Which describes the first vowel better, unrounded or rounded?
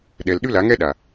unrounded